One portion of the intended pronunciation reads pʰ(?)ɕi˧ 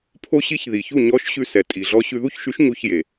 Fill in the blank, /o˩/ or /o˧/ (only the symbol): o˧